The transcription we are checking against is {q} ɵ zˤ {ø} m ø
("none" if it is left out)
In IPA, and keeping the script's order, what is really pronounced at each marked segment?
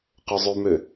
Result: q, ʉ

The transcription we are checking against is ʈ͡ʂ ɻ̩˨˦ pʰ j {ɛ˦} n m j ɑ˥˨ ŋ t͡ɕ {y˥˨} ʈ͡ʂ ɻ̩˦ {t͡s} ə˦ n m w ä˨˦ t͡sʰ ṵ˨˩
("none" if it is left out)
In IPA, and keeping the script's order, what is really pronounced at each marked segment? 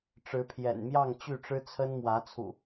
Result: ɛ̰˨˩, y˥˨, t͡sʰ

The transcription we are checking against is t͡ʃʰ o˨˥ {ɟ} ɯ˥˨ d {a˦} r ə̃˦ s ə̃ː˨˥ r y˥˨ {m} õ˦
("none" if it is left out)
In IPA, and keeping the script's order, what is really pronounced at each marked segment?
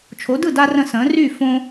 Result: d, a˦, f

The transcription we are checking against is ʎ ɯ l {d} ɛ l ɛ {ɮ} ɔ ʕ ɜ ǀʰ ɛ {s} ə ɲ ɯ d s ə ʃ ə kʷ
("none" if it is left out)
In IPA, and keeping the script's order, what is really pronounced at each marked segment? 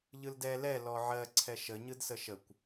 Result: d, l, ʃ

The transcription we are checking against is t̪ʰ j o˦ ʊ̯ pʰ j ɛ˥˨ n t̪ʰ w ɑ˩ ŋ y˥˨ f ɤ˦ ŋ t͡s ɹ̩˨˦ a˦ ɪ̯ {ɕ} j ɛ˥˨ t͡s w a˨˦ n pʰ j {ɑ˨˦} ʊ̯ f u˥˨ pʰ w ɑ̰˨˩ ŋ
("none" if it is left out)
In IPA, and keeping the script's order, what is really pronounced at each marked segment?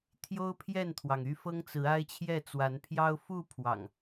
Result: t͡ɕʰ, ɑ˦

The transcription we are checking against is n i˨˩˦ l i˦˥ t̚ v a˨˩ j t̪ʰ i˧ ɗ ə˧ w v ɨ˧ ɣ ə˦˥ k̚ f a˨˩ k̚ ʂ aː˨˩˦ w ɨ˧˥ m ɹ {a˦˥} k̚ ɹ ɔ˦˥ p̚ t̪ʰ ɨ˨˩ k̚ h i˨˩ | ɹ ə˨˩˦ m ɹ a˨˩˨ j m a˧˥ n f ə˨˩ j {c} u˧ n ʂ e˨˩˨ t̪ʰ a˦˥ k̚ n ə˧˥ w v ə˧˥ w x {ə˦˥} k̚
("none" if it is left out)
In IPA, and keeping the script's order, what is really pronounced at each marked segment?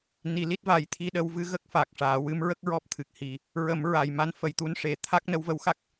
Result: ə˦˥, t̪, a˦˥

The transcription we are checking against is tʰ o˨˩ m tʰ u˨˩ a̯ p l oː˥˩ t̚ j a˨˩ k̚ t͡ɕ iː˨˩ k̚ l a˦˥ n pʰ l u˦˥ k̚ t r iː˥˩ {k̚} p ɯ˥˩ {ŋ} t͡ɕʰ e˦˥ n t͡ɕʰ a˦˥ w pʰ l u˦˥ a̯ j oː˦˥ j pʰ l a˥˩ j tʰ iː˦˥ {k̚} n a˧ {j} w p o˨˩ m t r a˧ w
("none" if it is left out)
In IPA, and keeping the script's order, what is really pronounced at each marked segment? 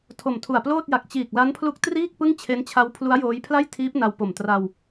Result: k̚, ŋ, p̚, none

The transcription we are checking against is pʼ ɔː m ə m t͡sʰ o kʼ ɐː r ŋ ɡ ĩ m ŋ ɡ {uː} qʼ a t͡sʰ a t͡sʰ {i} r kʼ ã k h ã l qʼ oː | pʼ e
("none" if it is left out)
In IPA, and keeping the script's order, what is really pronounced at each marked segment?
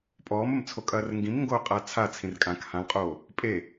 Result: oː, ĩ

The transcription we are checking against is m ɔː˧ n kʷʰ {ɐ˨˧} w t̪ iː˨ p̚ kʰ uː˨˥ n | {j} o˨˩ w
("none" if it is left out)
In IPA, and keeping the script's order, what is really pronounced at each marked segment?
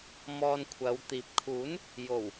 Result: ɐ˨˧, j

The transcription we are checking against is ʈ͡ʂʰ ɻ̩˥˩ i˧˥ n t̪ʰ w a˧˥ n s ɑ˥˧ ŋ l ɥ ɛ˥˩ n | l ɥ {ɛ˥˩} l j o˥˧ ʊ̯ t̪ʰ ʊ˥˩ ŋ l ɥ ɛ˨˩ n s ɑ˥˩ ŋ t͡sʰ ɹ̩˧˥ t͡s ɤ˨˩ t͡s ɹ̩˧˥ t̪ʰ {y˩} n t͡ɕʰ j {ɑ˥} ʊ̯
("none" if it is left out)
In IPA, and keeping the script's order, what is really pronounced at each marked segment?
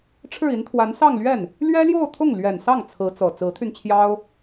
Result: ɛ˥, y˧, ɑ˥

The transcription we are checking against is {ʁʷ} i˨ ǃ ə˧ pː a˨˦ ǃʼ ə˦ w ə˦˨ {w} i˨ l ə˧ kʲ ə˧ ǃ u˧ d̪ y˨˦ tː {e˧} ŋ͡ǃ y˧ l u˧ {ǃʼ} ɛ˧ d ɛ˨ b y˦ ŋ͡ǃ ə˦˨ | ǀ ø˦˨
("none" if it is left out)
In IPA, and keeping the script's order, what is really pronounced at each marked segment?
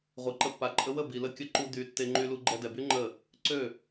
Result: ʁʷ, b, e˧, ɡ͡ǃ

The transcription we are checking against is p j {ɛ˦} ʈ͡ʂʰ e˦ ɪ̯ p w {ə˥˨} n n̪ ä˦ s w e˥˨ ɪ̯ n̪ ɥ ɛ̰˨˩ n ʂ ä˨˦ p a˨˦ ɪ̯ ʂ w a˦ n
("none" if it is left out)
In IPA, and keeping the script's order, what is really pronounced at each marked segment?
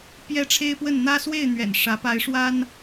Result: ɛ˦, ə˥˨

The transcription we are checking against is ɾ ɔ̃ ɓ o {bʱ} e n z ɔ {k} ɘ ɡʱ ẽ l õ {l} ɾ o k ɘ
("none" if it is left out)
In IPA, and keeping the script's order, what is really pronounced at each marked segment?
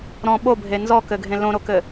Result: bʱ, k, none

